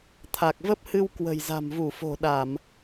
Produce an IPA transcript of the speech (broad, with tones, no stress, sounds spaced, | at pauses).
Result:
t̪ʰ a˨˩ k̚ v ə˦˥ p̚ h ɨ˧ w k w ə̤˨˩ j z a̤˨˩ m v u˧˩ f o̤˨˩ ɗ a˧˩˨ m